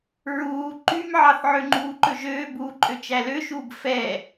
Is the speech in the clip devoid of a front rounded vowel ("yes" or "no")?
no